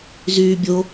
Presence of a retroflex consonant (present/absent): absent